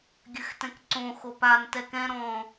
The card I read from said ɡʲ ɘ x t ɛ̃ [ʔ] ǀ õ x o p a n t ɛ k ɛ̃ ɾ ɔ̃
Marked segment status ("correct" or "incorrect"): incorrect